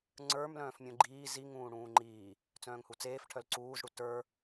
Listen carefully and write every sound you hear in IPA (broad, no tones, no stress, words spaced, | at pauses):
ŋ͡ǀə˞mlœ̃ːf mʲũɡ͡ǃiː zi ŋũːɽũːŋ͡ǃiː | t͡sœ̃ːŋhut͡seːf ʈʰœlǀuːzɽu tə˞